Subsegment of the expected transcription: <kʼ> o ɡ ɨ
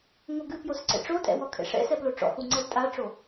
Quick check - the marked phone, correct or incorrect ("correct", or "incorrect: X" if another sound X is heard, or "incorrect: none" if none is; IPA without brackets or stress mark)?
incorrect: ŋ